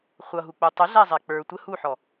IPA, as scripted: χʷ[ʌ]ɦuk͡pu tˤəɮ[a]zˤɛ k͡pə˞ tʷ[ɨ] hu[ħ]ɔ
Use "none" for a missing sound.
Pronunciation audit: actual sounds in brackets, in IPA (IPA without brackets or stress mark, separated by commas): ʌ, æ, ə, ħ